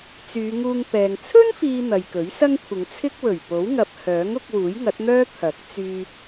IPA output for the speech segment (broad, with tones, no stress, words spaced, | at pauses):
t͡syː˨˧ŋuː˧ŋpɛː˨ŋ t͡sʰɵ˥nfiː˨ n̪ɐ˨jkɵ˨˥ɥsɐ˥ŋkʷʰɪ˨˧ŋ t͡sʰɪ˥k̚wɵ˨˩ɥ po˨˥wŋɐ˨p̚ hœː˨˥ŋʊ˧k̚ wuː˨˥jŋɐ˨˥t̚n̪œː˥ t̪ʰɐ˨˥k̚ t͡syː˧